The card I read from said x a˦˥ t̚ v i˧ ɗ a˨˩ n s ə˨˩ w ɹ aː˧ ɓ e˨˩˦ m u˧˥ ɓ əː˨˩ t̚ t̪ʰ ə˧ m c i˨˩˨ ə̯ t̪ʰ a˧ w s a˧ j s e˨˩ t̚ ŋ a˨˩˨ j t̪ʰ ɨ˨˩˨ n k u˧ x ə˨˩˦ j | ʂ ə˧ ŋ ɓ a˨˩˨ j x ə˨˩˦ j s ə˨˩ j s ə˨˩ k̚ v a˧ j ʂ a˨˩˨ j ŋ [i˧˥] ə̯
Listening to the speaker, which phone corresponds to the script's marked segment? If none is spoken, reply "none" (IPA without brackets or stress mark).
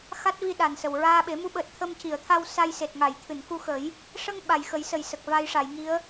i˧˥